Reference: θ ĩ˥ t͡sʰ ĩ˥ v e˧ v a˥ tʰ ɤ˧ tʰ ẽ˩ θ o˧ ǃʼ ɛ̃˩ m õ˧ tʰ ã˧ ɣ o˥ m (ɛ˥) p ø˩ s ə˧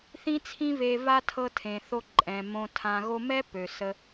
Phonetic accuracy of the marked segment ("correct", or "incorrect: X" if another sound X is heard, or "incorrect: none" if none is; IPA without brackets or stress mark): correct